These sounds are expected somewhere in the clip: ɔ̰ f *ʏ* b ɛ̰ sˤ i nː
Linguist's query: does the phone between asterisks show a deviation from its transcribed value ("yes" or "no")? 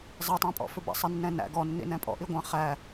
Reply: no